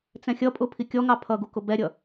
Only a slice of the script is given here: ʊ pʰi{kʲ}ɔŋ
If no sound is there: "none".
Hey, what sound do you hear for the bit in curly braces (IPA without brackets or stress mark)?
kʲ